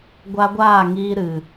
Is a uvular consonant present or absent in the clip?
absent